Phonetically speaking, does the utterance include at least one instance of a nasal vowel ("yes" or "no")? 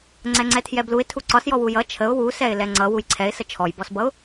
no